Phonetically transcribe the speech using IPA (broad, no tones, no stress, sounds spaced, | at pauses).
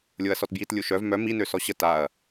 lʲ o ɐ̯ s ɔ t b j i t lʲ u ʃ œ v m œ m i n ø s ɔ ɕ ə t a ɐ̯